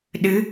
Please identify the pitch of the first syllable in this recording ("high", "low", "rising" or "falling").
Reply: rising